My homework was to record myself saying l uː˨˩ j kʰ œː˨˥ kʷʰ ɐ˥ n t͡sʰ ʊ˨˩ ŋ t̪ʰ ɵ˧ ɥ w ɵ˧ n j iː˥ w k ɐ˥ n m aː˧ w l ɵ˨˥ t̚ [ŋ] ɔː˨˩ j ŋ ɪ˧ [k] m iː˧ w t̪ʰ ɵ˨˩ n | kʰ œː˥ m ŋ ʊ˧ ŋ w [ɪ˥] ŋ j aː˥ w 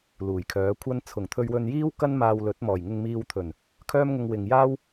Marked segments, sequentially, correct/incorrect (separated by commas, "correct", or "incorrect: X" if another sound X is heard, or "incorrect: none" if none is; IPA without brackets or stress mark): incorrect: m, incorrect: ŋ, incorrect: ɪ˨